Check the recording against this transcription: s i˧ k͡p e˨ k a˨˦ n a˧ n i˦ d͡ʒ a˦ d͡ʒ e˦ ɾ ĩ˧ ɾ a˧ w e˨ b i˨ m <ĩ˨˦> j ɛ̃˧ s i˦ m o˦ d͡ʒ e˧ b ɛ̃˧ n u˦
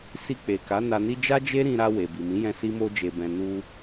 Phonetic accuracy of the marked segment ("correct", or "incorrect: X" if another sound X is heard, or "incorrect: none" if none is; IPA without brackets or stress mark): correct